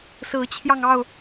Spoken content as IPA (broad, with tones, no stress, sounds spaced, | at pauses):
s ɹ̩˨˦ t͡ɕʰ j ɑ˧ ŋ ɑ˥˨ ʊ̯